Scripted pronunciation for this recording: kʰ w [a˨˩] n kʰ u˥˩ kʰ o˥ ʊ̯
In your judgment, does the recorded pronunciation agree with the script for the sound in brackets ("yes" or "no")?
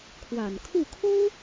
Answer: yes